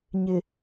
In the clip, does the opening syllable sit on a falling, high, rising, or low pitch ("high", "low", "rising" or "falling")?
low